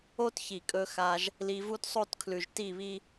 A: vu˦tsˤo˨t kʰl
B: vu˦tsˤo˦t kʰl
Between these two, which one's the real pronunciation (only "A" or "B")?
B